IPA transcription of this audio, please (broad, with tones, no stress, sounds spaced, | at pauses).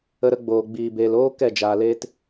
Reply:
ə˧ ɾ ə˧ ɡ͡b oː˨ ɡ͡b iː˨ b eː˨ l oː˦ k ɛ˦˨ d͡ʒ aː˨ l eː˦ t